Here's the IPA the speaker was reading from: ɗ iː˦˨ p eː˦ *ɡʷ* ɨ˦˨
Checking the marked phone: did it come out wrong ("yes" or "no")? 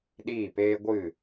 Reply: no